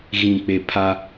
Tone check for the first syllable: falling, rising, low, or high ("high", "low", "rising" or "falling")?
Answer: low